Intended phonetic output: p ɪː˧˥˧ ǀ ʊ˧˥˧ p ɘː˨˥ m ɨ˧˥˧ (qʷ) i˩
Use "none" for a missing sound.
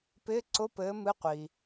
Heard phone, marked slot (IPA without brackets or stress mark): qʷ